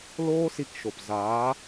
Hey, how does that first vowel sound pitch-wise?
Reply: high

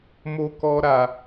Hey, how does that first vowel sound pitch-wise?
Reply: high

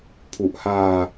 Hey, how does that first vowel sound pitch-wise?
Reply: low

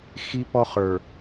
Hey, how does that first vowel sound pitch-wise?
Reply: high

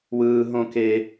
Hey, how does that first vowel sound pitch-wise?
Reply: high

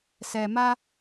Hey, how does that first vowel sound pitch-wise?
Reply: low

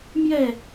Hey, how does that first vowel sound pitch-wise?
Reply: falling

